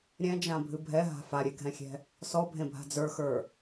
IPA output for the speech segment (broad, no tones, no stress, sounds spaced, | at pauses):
ɾʲ ɛ̃ d͡ʒ ã bʱ ɨ bʱ ɛ ɦ a̤ f a ɾʲ e ɡʱ ɛ̃ xʲ ɛ̤ | s ɔ bʱ ẽ bʱ a̤ d͡z ə˞ x ə˞